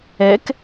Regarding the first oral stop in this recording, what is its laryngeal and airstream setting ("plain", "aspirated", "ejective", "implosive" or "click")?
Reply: plain